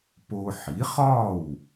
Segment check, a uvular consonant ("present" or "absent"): present